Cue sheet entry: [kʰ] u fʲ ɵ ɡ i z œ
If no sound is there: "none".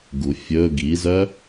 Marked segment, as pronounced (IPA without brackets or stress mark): ɡ